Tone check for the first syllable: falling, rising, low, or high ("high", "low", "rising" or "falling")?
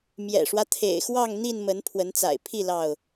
low